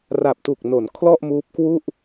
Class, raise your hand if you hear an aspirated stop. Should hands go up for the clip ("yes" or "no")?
yes